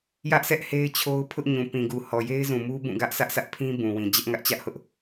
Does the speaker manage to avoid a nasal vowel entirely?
no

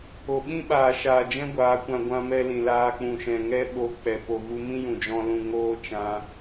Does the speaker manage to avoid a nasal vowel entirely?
no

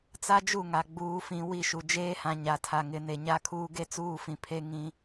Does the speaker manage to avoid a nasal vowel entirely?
no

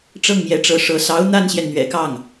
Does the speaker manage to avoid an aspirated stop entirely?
yes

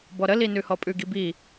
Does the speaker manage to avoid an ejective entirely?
no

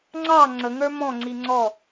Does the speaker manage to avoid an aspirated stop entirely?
yes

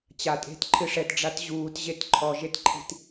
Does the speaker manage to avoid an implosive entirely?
yes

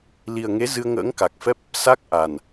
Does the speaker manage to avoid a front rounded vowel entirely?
yes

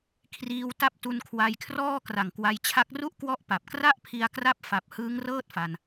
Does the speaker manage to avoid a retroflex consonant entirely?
yes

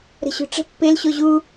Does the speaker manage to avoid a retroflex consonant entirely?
no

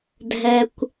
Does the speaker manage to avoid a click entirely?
yes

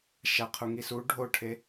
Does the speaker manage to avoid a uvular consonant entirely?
no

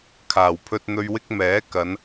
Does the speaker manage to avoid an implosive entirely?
yes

